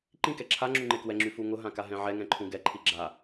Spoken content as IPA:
ǃĩkɛ ǁʰaŋ͡ǁu ŋ͡ǃekwɛŋ͡ǁy fuŋʊɦã kaɦɛ̃ʕɛŋɛ̃ ǃʰũɡɛǃʰi ɡ͡ǁa

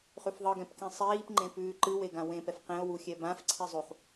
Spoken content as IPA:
χʉfðˤɯ ɡɛ̃pkĩsˤiːp ŋ͡ǃẽpʉːǃɯ weɡãwẽ pɛfqẽo̯ wuxʲɛbãf ǀʰizˤuχ

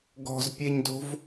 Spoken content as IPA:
ɡɔ̤zpʲeɲdo̤v

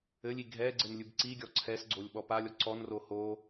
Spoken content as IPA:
ɘlʲi ɡʱɛ ɡ͡ǀɘnlʲɨbǀiɡʲɔ ǀʰɛsɡ͡ǀolʲ ɓɔpalʲɔ ǀɔnro ho

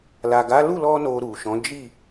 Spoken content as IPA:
la˨ɡa˨˦ lu˦˨lɔ˧ no˧ ɾu˨ʃɔ̃˨˦ d͡ʒi˦˨

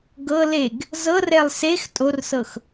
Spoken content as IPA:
ɡɤ leɡ | zɤrɛlˠ sex tʼorsɤx

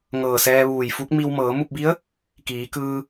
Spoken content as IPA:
ŋɤː˧˩sɛː˧ʋuː˧˩jfu˧˥k̚ mi˧w mɤː˩˧mu˥˨p̚bi˧˥ə̯ | kiː˩˧kɯː˧

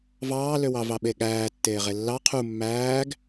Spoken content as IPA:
vɑːløwɑvɑ ɓeɠæː tːeːʁelːɑ qʰu mːæːɡ

